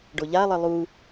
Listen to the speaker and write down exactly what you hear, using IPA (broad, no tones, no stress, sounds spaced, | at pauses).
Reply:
ɖ o ʎ a lˠ ə lˠ u